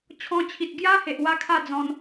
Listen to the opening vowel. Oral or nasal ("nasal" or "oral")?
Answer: nasal